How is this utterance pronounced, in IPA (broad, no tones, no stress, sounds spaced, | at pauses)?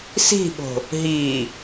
s i̤ ɓ o̤ | ɦ i